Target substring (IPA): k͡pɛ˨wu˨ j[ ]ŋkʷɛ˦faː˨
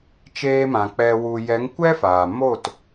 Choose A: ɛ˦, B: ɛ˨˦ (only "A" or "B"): B